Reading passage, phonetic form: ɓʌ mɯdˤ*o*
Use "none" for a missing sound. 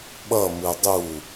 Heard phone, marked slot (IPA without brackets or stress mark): u